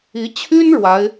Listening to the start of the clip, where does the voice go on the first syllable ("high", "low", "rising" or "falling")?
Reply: rising